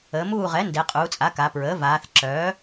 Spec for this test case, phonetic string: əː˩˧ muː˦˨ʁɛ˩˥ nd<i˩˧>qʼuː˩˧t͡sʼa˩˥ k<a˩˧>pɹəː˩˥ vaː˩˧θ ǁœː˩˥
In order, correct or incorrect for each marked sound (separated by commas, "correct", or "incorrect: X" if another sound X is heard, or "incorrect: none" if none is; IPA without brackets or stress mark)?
incorrect: e˩˧, correct